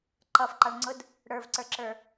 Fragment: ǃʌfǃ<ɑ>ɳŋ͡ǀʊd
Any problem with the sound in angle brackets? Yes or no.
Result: no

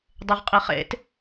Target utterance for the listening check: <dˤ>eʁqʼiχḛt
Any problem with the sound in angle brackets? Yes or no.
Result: no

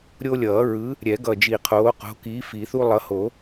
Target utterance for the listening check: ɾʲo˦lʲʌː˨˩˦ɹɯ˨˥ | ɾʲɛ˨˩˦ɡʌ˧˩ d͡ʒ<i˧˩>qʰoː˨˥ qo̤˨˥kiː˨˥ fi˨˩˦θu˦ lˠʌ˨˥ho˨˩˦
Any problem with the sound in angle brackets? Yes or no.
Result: no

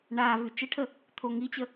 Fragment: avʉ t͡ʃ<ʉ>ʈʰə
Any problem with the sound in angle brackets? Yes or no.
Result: yes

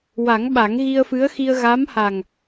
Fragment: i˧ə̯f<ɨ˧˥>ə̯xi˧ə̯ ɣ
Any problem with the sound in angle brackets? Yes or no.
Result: no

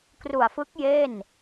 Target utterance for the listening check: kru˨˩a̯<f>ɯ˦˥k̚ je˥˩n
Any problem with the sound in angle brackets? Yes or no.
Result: no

